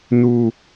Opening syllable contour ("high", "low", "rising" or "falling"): high